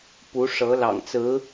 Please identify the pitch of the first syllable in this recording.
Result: rising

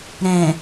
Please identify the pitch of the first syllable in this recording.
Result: low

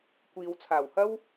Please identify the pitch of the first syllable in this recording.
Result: low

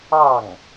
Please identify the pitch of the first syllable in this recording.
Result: falling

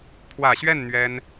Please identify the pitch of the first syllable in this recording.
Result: low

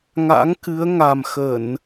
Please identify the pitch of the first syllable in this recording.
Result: rising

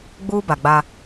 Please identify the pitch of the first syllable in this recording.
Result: high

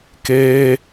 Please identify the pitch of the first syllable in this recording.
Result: high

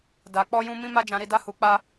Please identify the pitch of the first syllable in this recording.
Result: low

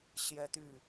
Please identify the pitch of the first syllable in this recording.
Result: high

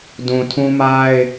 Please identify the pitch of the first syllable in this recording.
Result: low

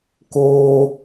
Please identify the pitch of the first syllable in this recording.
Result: high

